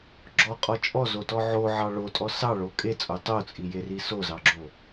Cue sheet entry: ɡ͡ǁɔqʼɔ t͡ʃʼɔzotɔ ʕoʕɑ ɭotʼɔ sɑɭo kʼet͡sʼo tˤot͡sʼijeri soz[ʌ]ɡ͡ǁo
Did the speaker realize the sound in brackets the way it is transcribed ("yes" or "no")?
no